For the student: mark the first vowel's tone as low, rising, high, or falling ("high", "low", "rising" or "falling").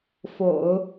low